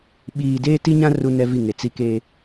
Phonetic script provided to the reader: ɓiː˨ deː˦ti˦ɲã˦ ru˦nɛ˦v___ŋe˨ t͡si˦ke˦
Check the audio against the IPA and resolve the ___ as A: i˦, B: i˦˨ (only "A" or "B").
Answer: B